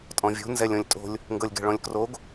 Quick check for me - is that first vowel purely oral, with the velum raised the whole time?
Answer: no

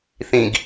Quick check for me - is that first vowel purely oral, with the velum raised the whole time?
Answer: no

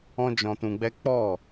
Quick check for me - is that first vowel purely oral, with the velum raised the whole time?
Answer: no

